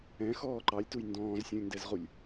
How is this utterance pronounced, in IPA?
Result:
ɛ̃ x ɔː ǃ ɑ lʲ t u j n d ɔ̃ː z sʲ ũ lʲ n d ɛ z ʁ u lʲ

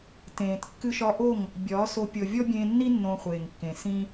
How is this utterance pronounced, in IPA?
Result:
t ẽː˨ t kː ɨ˧ ʃ ɒ˧ ʔ o˦˨ ŋ | bʲ ɒː˨˦ s o˧ pʲ ɤ˨ vʲ ɔ˦ bʲ ẽː˧ nː i˦ nː õ˧ χʷ eː˨ ŋ kː ẽ˨ s ĩ˦

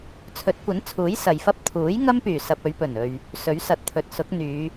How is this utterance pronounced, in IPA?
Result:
t͡sʰ ɵ˨˥ t̚ kʷ ɐ˨˥ n t͡sʰ uː˨˥ j s ɐ˨ j f ɐ˥ p̚ t̪ʰ uː˨˥ j ŋ ɐ˥ m p yː˨˩ s ɐ˧ p̚ ɵ˨˧ ɥ p ɵ˨˩ n ɵ˨ ɥ | s ɵ˨˥ ɥ s ɐ˧ t̚ t̪ʰ ɵ˧ t̚ s ʊ˨˥ k̚ n̪ yː˨˧

